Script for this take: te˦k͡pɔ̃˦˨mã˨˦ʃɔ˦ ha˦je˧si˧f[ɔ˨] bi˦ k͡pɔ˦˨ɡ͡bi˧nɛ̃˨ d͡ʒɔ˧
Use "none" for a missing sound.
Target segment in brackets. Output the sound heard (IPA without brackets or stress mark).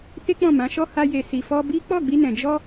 ɔ˦